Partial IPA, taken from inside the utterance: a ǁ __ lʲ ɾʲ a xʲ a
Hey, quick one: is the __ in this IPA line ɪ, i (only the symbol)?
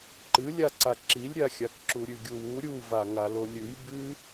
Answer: i